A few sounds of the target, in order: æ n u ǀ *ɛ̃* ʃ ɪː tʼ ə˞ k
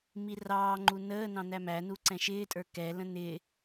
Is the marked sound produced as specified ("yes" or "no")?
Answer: yes